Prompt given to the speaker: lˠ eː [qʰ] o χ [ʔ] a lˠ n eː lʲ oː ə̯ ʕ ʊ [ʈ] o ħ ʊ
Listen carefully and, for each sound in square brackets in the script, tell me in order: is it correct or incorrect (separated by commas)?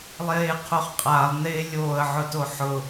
correct, incorrect, incorrect